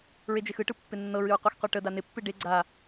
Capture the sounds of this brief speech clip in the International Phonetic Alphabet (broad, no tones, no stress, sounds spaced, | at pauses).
ɹ e d͡ʒ e x ɯ ʈ ɯ pː ɪ nː ɤ ɹ ɨ ɹ qʷ a x qʷ e ʈ ə d a n ɪ pː ɨ ɖ e ɡ͡ǀ a